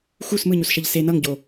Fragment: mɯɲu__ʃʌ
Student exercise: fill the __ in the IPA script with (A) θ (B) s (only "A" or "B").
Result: B